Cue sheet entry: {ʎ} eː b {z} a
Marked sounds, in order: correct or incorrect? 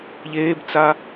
correct, incorrect

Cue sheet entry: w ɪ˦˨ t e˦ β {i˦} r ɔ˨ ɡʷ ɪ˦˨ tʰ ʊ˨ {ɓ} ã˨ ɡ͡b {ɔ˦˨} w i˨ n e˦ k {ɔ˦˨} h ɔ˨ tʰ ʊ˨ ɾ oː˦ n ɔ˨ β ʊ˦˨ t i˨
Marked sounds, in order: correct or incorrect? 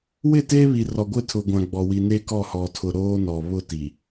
incorrect, incorrect, incorrect, correct

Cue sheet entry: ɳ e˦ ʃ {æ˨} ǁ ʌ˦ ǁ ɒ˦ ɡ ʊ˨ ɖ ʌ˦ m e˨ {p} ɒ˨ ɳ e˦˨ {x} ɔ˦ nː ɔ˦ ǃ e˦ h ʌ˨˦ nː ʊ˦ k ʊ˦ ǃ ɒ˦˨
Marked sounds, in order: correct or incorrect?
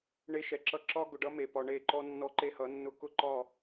incorrect, correct, incorrect

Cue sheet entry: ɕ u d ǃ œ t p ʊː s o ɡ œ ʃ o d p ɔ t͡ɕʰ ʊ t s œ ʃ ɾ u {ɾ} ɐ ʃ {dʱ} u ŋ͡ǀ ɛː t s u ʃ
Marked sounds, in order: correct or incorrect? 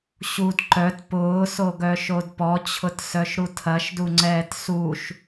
incorrect, incorrect

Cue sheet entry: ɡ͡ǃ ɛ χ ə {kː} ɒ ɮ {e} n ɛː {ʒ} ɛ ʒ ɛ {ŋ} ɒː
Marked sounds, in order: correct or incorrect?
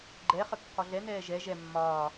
correct, incorrect, correct, incorrect

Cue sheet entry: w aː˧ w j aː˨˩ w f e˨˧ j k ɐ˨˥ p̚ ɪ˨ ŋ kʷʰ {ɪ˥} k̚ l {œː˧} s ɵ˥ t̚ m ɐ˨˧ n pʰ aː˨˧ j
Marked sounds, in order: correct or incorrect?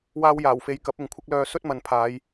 correct, correct

